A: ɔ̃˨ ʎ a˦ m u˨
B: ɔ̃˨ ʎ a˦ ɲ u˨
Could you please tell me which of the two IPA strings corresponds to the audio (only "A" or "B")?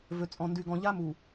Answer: A